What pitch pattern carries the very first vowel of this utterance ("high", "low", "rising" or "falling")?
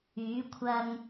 rising